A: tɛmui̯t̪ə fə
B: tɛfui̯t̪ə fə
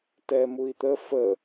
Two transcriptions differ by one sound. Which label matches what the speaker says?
A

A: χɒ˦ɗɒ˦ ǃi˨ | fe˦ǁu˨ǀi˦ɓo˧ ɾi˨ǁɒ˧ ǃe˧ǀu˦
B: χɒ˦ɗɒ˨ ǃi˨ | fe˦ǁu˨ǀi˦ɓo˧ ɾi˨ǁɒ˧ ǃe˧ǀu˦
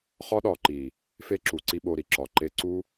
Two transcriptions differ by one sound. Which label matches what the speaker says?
B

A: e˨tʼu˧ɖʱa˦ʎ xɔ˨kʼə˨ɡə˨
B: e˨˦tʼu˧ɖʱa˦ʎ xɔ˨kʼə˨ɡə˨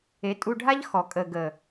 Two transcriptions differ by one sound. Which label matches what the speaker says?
B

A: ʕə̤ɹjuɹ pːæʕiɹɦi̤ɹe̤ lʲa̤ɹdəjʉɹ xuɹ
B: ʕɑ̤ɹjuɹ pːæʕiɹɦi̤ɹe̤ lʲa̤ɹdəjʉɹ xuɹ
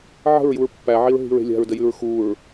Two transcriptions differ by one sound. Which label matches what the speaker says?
A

